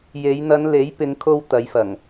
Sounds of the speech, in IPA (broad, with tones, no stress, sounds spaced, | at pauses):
j e˨˧ j n̪ ɐ˨˧ n l e˨˥ j p ɪ˨˧ ŋ kʰ o˧ w t̪ ɐ˨˧ j f ɐ˨˩ ŋ